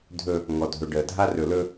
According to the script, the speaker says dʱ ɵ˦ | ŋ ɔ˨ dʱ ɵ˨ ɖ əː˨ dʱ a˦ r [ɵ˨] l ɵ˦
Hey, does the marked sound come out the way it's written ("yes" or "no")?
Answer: yes